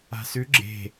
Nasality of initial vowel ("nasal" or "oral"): oral